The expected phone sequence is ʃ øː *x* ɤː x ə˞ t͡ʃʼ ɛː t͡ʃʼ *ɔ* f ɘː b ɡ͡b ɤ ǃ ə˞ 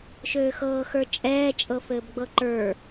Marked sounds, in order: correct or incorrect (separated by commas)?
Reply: correct, incorrect